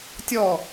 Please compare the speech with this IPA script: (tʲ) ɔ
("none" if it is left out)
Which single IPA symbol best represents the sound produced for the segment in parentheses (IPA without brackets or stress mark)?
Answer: tʲ